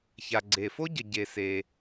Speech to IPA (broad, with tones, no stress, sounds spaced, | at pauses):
ç a˩ ɡ͡ǀ e˩ f o˥ ɟ ə˩ ɟ e˩ s e˩